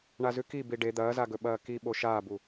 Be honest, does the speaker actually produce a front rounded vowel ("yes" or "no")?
no